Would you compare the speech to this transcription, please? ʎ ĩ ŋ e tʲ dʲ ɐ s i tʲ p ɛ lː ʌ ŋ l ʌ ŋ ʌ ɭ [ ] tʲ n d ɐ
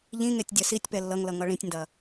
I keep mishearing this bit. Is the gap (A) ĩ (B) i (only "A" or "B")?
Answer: A